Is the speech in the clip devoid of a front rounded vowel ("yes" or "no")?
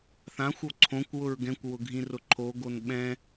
yes